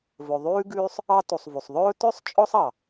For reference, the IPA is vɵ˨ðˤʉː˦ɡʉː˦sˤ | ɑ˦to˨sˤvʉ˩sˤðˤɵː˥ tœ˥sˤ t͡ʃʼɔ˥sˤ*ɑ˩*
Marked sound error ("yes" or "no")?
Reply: no